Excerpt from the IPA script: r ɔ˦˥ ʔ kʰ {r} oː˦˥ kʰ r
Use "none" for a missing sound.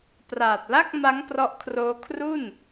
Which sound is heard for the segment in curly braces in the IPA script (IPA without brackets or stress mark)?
r